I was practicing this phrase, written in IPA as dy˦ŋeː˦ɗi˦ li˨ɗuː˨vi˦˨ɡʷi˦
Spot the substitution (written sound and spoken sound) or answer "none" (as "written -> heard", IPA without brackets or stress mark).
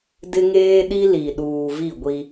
y˦ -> ɪ˦